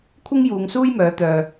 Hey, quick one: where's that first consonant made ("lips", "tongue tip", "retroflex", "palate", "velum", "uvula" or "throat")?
velum